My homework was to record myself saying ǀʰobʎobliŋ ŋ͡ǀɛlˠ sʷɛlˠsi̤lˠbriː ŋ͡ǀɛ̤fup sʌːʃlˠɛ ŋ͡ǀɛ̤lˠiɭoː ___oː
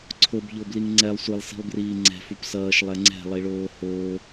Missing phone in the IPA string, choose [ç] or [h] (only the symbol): h